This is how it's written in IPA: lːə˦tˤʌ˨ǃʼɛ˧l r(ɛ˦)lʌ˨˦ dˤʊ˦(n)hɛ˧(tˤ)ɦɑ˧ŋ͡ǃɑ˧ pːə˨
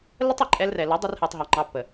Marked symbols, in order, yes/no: no, no, yes

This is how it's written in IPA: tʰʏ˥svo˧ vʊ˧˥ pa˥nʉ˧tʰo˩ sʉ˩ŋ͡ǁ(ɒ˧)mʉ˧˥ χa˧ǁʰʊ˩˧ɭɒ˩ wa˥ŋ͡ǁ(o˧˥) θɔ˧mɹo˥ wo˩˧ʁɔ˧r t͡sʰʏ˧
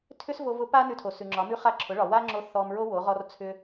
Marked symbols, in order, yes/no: no, yes

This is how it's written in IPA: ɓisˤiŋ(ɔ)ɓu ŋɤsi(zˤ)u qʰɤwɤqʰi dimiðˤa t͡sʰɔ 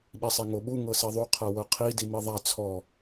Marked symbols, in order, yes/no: no, no

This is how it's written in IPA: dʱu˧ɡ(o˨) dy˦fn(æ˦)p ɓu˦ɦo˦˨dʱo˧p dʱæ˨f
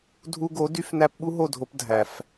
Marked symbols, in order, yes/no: no, yes

